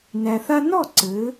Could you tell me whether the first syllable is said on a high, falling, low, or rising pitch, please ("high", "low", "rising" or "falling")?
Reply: low